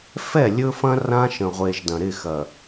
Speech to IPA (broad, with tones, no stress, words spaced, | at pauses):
fɛ˦˨lʲɵ˦fɐ̃˦ rã˦ʃə̃˨ʁʷe˨ʒ dɐ̃˨ɾɪ˦˨xɐ˨